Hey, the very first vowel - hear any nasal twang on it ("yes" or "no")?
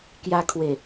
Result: no